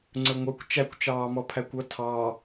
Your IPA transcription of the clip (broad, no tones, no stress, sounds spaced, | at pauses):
ŋ͡ǀ ə˞ ŋʷ ə˞ kʷ t͡ʃ æ kʷ t͡ʃ ɑː m ɔ pʰ æ kʷ ʌ tʰ ɑ